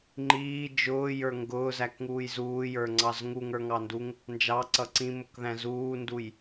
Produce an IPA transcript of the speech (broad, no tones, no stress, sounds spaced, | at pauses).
ŋ͡ǃ iː d͡ʒ ʊː j ə˞ ŋ ɡ ʊː z æ k ŋ uː j z uː j ə˞ ŋ͡ǀ ɑ z ŋ u ŋ ə˞ ŋ ɑ n d u ŋ | n d͡ʒ ɑ ǀ ʌ ǀ ĩ m ʊ k ð æ̃ z uː n d u j